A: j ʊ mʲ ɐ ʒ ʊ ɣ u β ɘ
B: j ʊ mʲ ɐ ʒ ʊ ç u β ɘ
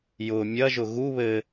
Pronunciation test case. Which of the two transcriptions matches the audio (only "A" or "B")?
A